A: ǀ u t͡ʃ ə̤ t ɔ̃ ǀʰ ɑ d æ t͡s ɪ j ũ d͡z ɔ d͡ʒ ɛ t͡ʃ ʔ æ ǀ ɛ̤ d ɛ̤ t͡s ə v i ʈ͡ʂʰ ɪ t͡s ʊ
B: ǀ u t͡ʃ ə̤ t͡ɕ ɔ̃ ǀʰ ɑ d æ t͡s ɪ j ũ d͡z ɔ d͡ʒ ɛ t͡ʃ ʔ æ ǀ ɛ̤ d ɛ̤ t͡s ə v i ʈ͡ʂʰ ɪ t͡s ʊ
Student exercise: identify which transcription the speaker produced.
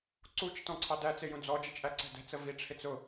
A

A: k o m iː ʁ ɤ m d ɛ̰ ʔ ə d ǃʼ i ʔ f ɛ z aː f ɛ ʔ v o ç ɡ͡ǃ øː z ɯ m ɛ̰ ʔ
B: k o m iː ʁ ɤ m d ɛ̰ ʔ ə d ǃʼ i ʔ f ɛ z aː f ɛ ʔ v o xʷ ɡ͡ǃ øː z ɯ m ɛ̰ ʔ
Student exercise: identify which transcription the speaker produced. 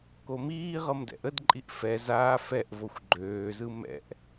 B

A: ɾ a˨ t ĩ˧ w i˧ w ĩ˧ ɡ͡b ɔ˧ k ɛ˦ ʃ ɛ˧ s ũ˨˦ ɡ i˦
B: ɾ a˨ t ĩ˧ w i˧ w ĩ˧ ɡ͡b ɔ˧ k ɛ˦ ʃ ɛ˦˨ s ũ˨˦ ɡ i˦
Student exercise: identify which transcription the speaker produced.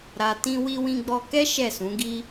B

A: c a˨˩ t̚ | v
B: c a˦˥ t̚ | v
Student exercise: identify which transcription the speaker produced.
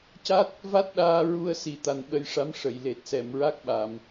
B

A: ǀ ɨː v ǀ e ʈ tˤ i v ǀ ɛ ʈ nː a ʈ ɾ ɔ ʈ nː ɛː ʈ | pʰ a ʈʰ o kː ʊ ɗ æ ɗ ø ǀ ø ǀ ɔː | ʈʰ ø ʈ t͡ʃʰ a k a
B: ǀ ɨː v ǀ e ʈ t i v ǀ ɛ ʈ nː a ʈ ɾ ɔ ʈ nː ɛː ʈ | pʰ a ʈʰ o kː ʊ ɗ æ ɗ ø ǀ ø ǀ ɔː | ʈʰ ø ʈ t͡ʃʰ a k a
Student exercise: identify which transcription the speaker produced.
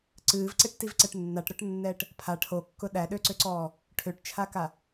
B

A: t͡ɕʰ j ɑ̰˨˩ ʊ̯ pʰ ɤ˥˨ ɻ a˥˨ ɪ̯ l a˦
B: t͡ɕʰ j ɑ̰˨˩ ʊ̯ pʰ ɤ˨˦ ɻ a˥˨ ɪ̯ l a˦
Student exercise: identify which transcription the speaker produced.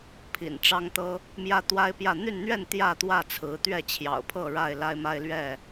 A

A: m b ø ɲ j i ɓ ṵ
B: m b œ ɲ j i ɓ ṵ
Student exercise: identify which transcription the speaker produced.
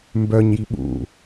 B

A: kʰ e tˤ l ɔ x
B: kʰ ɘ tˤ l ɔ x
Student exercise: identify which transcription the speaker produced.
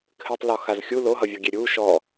B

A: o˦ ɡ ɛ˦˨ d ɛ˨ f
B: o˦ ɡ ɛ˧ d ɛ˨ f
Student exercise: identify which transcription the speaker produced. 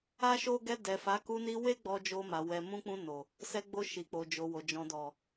B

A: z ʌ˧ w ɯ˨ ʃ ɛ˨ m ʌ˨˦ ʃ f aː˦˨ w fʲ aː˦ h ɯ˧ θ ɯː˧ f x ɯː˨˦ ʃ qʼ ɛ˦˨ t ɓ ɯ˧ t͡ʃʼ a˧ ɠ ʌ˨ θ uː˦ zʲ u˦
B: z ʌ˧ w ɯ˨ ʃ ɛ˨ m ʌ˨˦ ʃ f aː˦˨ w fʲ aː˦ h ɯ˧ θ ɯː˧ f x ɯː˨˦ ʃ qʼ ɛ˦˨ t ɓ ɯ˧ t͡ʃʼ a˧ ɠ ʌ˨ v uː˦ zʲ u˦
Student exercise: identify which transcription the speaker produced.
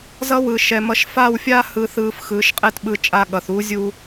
A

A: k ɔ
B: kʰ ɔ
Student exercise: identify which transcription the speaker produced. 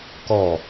A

